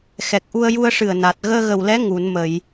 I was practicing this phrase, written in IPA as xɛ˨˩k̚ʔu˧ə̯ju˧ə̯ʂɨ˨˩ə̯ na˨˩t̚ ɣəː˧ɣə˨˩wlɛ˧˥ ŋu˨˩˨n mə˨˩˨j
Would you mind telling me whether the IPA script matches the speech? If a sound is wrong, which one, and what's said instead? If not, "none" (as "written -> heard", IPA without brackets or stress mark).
none